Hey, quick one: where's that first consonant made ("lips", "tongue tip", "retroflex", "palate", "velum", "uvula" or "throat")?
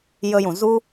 palate